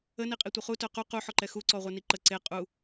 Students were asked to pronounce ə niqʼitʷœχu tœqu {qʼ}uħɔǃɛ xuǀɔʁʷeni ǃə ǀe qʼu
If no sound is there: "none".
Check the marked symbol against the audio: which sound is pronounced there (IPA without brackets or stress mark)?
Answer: q